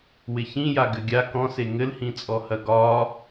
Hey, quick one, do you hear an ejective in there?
yes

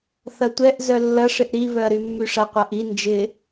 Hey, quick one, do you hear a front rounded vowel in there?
yes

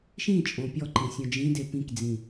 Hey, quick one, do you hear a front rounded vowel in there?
no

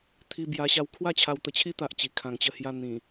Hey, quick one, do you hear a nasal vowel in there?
yes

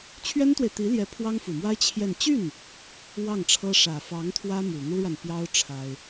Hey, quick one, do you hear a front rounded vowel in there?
yes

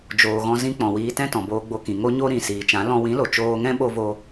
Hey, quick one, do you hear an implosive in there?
yes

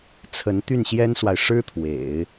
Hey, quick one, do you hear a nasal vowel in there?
no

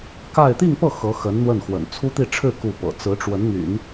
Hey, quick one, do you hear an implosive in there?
no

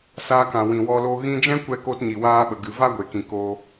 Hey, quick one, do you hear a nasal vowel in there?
yes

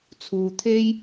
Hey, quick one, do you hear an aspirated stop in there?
yes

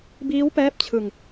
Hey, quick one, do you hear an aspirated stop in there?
yes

